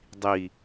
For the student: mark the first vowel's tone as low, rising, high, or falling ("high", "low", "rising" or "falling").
low